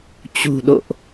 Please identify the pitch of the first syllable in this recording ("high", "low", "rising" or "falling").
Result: low